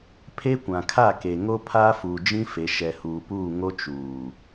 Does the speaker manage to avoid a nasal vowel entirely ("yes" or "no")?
no